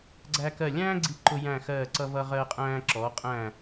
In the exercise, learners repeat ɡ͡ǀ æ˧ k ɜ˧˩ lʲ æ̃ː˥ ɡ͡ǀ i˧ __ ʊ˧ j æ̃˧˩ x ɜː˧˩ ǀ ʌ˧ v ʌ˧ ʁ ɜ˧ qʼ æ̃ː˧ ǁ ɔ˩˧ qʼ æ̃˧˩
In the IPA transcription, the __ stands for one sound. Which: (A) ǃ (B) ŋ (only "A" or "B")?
A